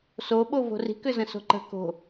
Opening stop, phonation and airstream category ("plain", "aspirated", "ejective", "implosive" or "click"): implosive